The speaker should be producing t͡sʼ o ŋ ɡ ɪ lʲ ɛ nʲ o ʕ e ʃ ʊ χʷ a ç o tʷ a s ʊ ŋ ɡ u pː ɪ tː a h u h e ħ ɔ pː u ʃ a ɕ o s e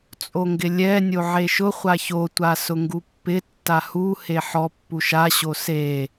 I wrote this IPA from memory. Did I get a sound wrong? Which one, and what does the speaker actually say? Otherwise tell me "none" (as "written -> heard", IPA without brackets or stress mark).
none